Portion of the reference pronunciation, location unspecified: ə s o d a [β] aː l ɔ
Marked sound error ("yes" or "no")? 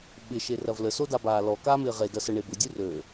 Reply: yes